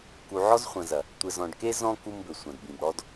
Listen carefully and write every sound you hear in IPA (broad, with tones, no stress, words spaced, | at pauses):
ku˨ʕɔ˦zχʷɐ̃˨zɐ˨ | tʷɘ˨zɔ̃˨ɖke˦ zɔ̃˦ ku˦mbɘ˨ sʷɐ̃˨dbĩ˨bɽɔ˦d